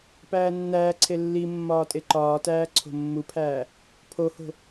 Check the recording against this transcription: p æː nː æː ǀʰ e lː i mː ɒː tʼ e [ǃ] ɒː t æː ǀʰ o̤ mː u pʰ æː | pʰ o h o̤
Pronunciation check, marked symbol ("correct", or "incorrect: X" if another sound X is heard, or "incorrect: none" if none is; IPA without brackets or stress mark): correct